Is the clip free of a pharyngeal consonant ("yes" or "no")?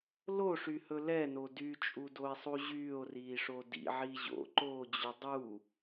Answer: no